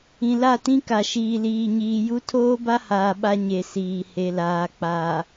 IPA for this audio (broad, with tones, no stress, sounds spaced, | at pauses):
ĩ˨ l a˦˨ t ĩ˦ k a˨ ʃ iː˨ l iː˨ ɲ iː˨ j u˦ tʰ oː˦ b a˦ h aː˨ ɓ a˦ ɲ e˨ s iː˨ h e˨ l aː˨ k͡p a˨